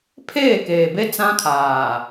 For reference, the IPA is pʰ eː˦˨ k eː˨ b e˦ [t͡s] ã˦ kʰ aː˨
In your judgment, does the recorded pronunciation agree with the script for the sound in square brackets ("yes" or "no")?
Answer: yes